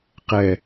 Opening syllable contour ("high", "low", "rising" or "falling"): low